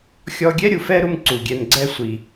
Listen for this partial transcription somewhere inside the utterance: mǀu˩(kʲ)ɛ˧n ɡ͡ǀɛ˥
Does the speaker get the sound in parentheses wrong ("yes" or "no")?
yes